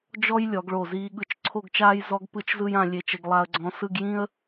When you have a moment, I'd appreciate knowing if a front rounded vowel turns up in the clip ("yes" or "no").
no